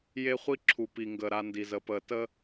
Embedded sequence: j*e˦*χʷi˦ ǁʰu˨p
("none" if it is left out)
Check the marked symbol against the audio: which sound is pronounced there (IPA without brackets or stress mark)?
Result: e˦